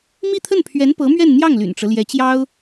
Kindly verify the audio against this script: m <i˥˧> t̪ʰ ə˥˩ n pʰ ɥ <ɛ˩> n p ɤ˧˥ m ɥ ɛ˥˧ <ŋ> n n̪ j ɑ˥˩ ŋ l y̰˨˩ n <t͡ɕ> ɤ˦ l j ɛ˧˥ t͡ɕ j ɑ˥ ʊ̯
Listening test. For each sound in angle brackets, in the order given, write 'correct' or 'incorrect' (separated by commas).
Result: correct, incorrect, incorrect, incorrect